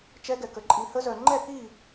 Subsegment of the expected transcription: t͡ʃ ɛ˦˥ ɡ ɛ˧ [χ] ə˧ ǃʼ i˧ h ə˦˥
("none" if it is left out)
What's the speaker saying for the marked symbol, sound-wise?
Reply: k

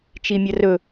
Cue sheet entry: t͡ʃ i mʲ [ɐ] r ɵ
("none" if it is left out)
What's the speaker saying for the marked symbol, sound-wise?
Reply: ɐ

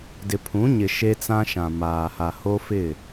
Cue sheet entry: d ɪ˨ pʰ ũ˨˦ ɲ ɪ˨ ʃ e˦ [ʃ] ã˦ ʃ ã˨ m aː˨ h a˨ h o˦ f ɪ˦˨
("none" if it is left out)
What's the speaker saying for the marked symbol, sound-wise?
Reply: t͡s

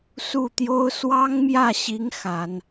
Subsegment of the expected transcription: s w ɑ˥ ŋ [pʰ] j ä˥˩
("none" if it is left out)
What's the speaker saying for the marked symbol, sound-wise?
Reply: m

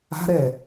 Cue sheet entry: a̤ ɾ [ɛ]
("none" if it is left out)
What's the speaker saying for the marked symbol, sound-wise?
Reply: ɛ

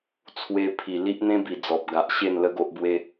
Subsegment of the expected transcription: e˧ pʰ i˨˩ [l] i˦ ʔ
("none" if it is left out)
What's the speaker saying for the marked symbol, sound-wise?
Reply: l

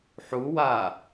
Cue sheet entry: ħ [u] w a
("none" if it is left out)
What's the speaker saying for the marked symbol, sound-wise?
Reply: u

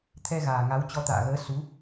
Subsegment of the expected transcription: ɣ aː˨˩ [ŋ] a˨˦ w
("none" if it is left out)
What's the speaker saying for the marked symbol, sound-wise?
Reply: ŋ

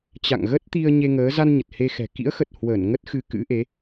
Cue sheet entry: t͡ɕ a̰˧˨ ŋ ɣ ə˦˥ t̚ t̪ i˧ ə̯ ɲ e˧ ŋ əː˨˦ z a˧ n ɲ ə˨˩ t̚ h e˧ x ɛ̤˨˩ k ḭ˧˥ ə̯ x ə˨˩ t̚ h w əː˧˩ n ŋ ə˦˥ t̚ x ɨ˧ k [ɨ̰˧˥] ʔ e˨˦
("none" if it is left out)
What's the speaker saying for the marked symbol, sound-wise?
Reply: ɨ̰˧˥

